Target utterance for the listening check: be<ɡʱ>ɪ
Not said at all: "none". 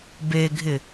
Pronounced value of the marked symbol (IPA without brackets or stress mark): ɡʱ